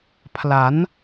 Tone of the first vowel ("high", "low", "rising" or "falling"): rising